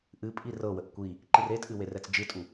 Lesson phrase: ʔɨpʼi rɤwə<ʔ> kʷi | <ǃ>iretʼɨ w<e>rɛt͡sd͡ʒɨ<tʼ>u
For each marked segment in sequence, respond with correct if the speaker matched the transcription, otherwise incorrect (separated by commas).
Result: correct, correct, correct, correct